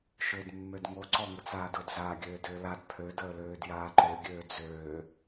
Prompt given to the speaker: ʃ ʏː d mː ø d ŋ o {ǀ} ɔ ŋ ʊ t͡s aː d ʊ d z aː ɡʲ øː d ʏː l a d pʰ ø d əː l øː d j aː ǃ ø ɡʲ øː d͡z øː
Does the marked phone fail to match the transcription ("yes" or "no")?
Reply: no